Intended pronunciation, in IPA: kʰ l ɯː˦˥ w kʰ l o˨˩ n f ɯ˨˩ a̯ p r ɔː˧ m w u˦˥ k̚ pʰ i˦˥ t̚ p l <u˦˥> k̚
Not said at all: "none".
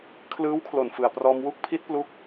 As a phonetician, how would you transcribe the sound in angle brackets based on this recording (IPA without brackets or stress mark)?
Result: u˦˥